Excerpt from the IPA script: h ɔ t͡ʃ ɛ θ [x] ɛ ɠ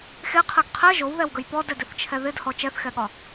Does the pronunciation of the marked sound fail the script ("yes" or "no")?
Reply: no